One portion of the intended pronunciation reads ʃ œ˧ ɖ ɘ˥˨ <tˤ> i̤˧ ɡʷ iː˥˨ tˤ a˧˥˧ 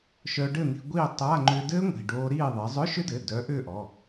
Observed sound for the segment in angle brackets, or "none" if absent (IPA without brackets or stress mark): n̪